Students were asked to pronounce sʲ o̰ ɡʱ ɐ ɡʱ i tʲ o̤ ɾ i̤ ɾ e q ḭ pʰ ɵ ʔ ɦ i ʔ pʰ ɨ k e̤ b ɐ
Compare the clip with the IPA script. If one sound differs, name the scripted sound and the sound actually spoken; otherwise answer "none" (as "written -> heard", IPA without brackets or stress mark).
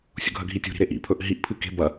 q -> ʔ